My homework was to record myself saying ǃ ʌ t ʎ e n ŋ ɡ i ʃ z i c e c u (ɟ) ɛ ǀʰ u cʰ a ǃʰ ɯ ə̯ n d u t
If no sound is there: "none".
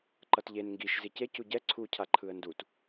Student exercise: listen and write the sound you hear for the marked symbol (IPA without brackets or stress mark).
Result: ɟ